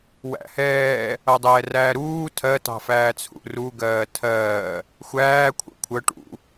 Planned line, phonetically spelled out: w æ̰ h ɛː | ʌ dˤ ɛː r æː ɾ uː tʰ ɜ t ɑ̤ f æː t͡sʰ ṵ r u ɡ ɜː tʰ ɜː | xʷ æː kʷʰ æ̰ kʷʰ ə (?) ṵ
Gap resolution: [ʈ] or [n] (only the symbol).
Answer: ʈ